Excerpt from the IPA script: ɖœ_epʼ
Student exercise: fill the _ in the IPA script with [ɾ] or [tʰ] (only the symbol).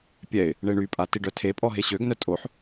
tʰ